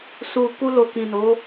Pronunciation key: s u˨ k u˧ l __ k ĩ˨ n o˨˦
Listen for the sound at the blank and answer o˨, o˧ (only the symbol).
o˨